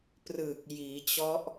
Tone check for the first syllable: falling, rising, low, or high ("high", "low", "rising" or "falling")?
low